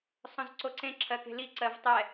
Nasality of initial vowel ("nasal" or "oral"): nasal